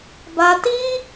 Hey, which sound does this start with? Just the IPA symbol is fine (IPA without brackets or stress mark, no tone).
b